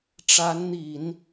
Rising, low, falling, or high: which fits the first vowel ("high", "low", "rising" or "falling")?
rising